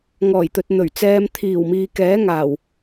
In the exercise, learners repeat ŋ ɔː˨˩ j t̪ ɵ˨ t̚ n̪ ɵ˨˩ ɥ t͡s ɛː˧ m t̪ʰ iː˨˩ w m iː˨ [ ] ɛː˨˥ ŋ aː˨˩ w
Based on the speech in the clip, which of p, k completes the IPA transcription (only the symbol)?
k